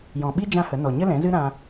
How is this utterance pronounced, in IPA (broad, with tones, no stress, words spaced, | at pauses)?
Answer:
jɔ̃˨ɓi˦ d͡ʒã˦hə˨˦ nɔ˨ɲə˦lɛ̃˨˦zɨ˦ ɾã˧